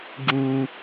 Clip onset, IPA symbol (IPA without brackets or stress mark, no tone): ɡ